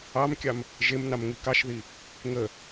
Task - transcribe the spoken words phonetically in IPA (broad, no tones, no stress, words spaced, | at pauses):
ɑmkʲɑm | ʒemnɑm ŋikɑʃði | ŋə